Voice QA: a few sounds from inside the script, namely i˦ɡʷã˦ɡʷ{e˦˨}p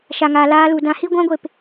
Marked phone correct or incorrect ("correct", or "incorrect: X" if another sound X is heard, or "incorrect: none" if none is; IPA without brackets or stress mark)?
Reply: correct